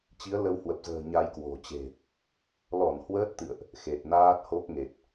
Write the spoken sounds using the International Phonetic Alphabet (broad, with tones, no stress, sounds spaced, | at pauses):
t͡ɕ i˨˦ ə̯ l ə˧ w h w ə˨˩ p̚ z ə̤ː˨˩ ɲ a˧ j k w o̤˨˩ t͡ɕ e̤˨˩ | l ɔ˧˩ n h w əː˦˥ t̚ t̪ ɨ̰˧˨ ə̯ ʔ | x e˨˩ t̚ n aː˦˥ t̚ h o˦˥ k̚ ŋ e˨˩ t̚